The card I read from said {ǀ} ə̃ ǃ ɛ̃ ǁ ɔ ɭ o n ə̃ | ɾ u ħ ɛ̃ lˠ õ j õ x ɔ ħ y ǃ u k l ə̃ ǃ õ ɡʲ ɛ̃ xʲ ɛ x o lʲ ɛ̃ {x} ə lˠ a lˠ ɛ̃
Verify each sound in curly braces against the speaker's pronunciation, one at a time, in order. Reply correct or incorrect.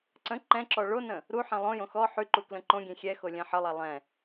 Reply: correct, incorrect: ħ

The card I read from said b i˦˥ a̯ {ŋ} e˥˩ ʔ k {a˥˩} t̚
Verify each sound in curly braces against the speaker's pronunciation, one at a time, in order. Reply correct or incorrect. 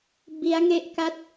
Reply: correct, correct

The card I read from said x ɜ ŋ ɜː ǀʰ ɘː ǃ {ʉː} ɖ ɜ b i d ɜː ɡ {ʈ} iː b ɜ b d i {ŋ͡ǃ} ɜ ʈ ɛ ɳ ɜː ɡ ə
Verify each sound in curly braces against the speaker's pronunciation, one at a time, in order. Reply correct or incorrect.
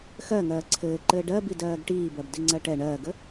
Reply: incorrect: ɘː, correct, incorrect: ŋ͡ǀ

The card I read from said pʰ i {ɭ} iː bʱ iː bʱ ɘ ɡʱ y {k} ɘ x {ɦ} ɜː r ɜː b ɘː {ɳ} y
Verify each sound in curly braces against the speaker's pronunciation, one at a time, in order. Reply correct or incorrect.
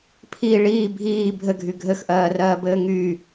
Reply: correct, incorrect: ɡʱ, incorrect: ʔ, incorrect: ŋ

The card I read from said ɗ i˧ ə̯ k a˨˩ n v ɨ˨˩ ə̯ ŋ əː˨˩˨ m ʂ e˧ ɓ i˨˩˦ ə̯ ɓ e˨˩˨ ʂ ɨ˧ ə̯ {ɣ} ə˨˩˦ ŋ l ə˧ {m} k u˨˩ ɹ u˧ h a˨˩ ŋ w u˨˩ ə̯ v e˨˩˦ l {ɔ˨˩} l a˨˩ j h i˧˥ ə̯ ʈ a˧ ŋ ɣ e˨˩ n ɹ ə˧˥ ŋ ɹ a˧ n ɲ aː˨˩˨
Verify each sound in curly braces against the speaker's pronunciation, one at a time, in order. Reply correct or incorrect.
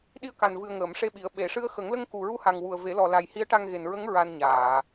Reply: incorrect: x, incorrect: ŋ, correct

